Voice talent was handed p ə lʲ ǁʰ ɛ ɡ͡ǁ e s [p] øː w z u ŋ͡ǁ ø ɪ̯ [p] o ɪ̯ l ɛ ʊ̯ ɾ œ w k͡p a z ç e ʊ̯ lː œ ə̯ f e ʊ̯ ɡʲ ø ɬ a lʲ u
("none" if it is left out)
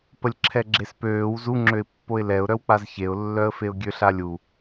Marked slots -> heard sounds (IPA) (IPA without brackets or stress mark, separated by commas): p, pː